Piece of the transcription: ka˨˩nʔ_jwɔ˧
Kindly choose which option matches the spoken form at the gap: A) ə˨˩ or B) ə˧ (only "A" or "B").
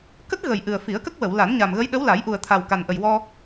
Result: A